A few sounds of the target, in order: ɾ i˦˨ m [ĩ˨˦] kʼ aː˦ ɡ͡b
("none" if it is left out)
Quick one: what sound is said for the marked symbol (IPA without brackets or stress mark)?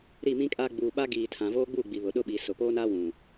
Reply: ĩ˦